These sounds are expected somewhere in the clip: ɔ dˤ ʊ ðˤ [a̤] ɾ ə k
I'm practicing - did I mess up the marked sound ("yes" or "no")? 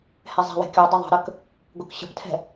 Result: yes